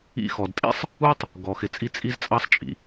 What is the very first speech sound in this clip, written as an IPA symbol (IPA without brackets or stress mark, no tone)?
ḭ